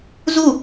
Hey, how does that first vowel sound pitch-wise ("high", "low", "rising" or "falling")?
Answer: falling